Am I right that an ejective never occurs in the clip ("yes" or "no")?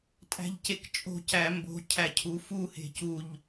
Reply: no